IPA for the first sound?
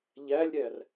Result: ʎ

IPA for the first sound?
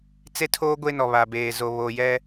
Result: t͡s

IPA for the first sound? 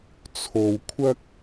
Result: t͡sʰ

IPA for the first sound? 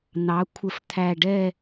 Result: n̪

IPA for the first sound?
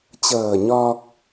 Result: t͡ɕ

